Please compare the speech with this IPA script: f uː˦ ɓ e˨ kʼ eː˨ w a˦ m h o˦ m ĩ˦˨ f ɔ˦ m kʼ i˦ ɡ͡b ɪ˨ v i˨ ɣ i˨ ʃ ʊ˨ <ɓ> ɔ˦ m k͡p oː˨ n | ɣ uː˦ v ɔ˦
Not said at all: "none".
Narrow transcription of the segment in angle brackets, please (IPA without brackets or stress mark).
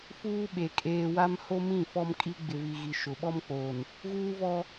ɓ